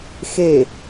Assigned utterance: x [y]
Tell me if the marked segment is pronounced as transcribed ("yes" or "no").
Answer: no